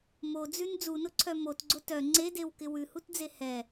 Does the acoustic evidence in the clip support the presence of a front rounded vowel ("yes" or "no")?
yes